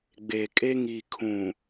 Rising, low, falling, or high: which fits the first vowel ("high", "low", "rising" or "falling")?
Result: low